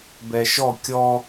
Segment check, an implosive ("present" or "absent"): absent